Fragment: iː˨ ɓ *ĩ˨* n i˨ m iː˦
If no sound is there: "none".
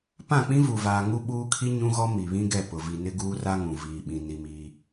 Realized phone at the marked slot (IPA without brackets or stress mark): ĩ˨